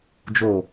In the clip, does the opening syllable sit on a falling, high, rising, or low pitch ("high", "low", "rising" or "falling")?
low